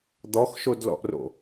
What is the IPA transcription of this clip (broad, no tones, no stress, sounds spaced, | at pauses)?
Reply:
d̪ ɔ x ʃ o d l ɔ̰ ʔ r o̰